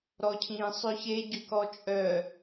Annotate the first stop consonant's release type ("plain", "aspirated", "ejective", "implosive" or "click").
aspirated